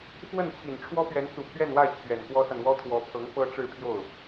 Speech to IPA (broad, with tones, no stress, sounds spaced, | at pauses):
f w ə˥˩ n t͡ɕʰ i˨˩ n ʈ͡ʂʰ w ɔ˥ p ɥ ɛ˧˥ n t͡s u˨˩ pʰ ɥ ɛ˥˧ n w a˥˩ ɪ̯ t͡ɕʰ ɥ ɛ˨˩ n k w ɔ˥ s a˨ n w ɔ˥ t̪ʰ w ɔ˧˥ pʰ ɤ˧˥ ŋ f ɤ˥ ʈ͡ʂ ɻ̩˥˧ pʰ j o˥˩ ʊ̯